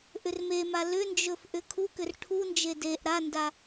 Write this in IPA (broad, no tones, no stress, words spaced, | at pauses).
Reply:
ʔʏrmema lʏnd͡ʒɵf ʔʏkʰukʏr ʈʰund͡ʒe deʔ ɾanda